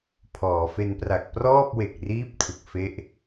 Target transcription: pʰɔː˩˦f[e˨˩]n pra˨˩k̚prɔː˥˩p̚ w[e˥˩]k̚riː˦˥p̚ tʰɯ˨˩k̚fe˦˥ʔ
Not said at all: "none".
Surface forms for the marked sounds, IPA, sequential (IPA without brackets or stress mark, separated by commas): e˧, e˨˩